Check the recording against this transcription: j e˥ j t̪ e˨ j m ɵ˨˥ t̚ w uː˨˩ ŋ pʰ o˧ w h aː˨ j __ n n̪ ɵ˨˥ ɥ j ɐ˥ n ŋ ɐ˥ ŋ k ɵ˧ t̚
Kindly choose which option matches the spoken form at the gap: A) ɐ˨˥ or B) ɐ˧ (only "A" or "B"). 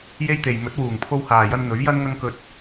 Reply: B